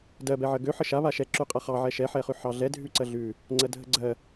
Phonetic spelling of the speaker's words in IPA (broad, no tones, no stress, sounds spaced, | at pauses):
d ɜ b ɛ ʕ ɜ ɡ ø ħ ə ʃ a β a ʃ ɛ ǁ ʉ qʼ a χ ɑ ʕ ɛ ʃ ɛ ħ ɛ χ ʉ ħ ɑ ɮ ɛ dʱ ʉ ǀ ɜ ɮ ʉ | ŋ͡ǀ ɜ dʱ ə ɡ͡ǀ ɜ